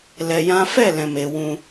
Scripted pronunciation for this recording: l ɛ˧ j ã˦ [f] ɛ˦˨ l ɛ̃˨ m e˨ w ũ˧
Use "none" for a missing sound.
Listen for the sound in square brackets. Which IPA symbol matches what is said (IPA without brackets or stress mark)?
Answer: f